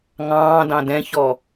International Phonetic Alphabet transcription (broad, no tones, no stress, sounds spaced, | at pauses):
ŋ ɑ̃ː d ɑ̃ d ɛ̃ ç ɔ